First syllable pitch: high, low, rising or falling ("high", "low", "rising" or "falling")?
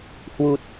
low